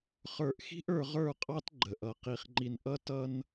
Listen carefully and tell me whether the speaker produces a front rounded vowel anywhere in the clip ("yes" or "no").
no